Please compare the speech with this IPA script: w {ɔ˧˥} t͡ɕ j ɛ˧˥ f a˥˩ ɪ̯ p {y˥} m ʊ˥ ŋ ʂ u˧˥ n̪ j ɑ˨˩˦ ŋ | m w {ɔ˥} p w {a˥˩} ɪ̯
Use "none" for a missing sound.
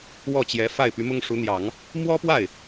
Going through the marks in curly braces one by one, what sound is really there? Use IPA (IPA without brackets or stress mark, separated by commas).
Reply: ɔ˥˩, y˧˥, ɔ˥, a˥˩